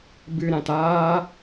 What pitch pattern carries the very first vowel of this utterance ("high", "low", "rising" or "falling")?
low